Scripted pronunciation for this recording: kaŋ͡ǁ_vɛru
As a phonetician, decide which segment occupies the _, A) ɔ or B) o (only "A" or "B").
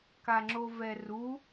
B